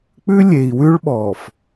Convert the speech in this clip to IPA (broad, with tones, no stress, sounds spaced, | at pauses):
k͡p ʉ˦ lʲ e˨ i̯ w ʉ˦ ɭ ɓ ɔ˨ f